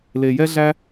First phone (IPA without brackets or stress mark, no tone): l